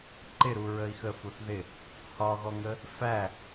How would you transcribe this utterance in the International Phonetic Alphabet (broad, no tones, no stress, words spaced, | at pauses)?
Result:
ǃɪɾu ɹəi̯xə fuθðɪ | hɒɣɔŋə | fæ